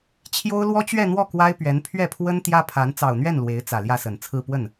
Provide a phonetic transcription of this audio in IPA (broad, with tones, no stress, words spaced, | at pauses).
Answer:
t͡ɕʰjo˥ʊ̯ lwɔ˥t͡ɕɥɛ˥˧n̪wɔ˥˩ kwa˥ɪ̯pɥɛ˧˥n pʰɥɛ˥˩pʰwə˥n t̪jä˥pʰa˧˥n t͡sɑ˨˩ʊ̯n̪ɥɛ˥˩n lwe˧˥ɪ̯t͡sä˨˩ ljä˥˩sə˨˩nt͡sʰɹ̩˥˧ pwə˥˩n